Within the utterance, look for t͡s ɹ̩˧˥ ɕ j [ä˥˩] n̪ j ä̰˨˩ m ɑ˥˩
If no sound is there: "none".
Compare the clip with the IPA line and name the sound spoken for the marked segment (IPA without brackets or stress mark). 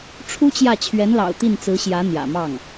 ä˧˥